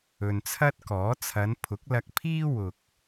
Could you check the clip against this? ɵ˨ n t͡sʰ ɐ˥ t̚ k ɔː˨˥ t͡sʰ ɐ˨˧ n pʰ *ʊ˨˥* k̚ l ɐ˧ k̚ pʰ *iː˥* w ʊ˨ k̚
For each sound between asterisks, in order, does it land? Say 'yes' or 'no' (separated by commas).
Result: yes, yes